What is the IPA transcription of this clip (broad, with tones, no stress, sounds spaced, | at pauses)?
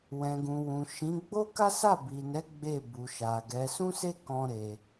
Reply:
w ɛ̃˨ ɡ ũ˨ w ũ˨ ʃ ĩ˨˦ ɡ͡b o˦ k a˦ s a˦˨ b i˨ n ɛ˨˦ ɡ͡b e˦˨ b u˨ ʃ a˨ ɡ ɛ˨˦ s ũ˦ s e˦ k ɔ̃˧ ɾ e˨